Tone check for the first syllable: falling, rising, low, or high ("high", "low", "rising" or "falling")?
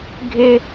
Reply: high